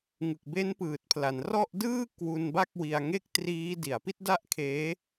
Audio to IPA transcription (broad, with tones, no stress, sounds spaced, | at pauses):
ŋ ɯ˨˩ k̚ b e˦˥ n p ɯː˨˩ t̚ pʰ l a˩˦ n r ɔ˥˩ ʔ d ɯː˥˩ k w u˧ n b a˥˩ k̚ w i˧ a̯ ŋ e˥˩ k̚ t r iː˦˥ d i˩˦ a̯ p i˥˩ t̚ d a˥˩ ʔ kʰ eː˦˥